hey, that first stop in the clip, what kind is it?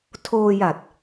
aspirated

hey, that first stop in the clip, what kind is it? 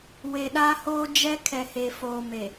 implosive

